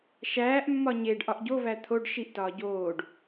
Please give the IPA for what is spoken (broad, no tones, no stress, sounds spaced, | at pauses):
ʃ æː ʔ mː ɒ ɲ e ɖ ʔ ɒ ʔ ɟ o v æ t̪ʰ o ɖ ʃ i ʔ t ɒː ɟ oː ɖ